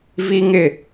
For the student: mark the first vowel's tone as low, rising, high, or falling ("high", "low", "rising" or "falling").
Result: high